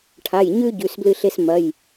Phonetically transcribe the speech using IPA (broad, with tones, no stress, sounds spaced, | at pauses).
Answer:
ʈʰ a˩˧˩ j ɲ ʉ˥ ɟ ʉ˩˧˩ s b l ɨ˥˧ ɬ e˥ s m ɐ˩˧˩ j